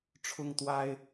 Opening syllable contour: high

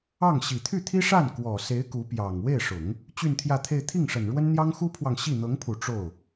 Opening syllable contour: falling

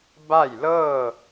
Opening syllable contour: falling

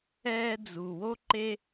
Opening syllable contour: high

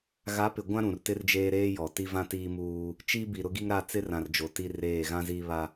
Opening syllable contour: rising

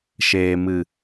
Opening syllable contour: low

